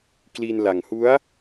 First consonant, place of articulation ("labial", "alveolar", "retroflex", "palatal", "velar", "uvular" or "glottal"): velar